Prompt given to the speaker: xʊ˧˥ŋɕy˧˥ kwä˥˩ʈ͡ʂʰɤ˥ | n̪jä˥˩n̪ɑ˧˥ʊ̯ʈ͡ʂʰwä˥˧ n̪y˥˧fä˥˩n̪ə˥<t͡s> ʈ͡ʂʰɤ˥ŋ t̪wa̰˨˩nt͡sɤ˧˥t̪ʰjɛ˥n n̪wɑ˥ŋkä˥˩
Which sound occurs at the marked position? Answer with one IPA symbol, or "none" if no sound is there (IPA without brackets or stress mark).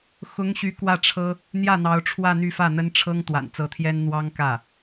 n